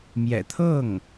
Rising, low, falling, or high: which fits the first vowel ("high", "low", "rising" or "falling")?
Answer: low